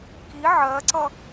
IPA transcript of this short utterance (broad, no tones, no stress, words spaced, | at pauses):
ki ʕɜǀʌ